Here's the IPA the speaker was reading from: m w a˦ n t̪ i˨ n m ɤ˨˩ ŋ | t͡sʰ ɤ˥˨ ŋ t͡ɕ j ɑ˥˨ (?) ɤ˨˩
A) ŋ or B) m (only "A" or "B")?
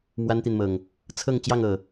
A